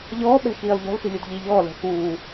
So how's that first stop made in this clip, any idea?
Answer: implosive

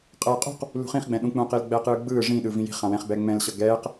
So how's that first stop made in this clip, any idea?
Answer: ejective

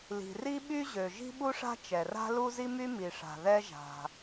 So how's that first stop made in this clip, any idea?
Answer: implosive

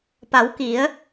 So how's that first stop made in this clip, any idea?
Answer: plain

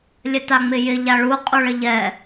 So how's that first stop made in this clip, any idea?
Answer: plain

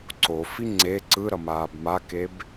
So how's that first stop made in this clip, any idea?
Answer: click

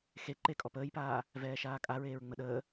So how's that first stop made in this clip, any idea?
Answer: click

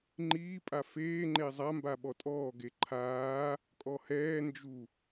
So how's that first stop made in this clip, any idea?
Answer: click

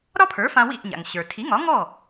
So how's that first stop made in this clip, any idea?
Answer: aspirated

